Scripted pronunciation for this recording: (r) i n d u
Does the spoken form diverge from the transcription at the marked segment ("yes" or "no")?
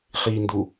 yes